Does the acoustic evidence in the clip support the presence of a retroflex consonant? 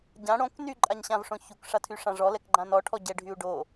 yes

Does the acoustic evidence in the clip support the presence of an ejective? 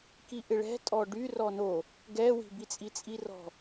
yes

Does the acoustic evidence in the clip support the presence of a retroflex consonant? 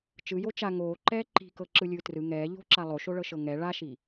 yes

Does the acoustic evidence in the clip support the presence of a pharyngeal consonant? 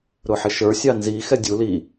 yes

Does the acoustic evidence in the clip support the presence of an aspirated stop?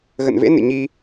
no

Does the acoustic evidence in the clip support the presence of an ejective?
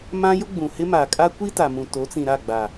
yes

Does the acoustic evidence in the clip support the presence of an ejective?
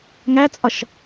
yes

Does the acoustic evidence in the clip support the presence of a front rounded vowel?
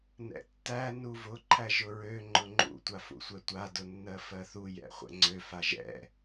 yes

